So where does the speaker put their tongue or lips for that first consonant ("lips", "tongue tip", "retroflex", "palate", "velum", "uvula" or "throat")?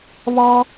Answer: lips